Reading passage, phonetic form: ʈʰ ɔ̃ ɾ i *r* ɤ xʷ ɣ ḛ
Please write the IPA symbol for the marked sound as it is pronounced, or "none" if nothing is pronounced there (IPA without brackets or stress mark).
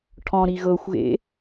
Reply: ɣ